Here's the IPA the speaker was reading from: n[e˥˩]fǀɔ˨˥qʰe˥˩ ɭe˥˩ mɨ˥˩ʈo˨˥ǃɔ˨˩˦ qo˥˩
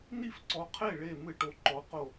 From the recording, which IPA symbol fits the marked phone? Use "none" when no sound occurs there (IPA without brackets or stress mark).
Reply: i˥˩